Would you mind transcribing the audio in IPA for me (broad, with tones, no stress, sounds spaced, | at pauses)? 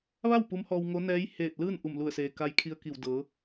ʋ a˥˨ w p u˧˥ m h ɔː˧ w ŋ o˧˥ n ɛː˧˥ j h eː˧˩ t̚ l ɯː˥˨ n ʔ u˧˩ m l u˧˩ ə̯ s eː˩ k a˧˥ j kʰ i˧ ə̯ k i˧˩ w d ɤː˩˧